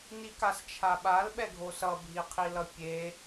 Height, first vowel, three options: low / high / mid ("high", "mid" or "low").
high